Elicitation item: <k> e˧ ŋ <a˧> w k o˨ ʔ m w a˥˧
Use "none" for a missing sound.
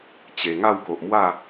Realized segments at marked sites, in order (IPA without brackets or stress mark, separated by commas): t͡ɕ, a˥˧